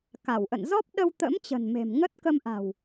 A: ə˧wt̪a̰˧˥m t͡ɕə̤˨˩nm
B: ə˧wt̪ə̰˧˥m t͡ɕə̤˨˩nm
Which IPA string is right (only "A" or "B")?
B